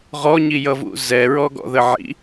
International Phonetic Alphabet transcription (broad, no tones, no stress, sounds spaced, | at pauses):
ʁ ɔ ɲ i j ʌ v ṵ z ɛ ɹ ɔ ɡ ɔ̰ ð ə ʕ ḭ